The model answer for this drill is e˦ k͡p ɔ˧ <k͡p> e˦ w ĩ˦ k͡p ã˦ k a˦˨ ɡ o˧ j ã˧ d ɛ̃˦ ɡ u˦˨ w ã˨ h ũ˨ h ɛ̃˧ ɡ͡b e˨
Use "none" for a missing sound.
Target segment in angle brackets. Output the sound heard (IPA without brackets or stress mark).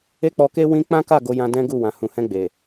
k